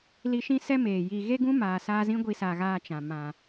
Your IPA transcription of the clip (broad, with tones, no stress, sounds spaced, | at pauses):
l i˧ ʃ ĩ˦ s ɛ˦ m eː˨ j i˧ ɣ e˦ ɡ ũ˦ m aː˨ s aː˧ z ĩ˦ ɡʷ i˧ s a˨ ɣ aː˧ t͡ʃ ã˨ m ã˨